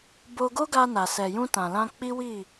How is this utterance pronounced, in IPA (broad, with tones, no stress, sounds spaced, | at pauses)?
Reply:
b o˧ ɡ o˦ ɡ a˧ n a˨ s ɛ˨ j ũ˧ t ã˨ l ã˧ k͡p i˦ w i˦˨